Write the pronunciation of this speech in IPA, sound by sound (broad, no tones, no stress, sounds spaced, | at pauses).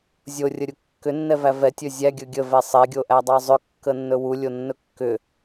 zʲ o rʲ ə ɾʲ u kː ʏ nː ɛ v æ v ɛ tʲ ɵ zʲ æ ɡʲ ɵ ɡʲ ə v ɛ sˤ e ɡʲ o ʔ æ dˤ ɑ zˤ ʏ kː ə nː ɵ w u lʲ o nː ɵ kː ʏ